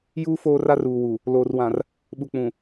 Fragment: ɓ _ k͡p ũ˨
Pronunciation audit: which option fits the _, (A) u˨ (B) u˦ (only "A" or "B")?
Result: A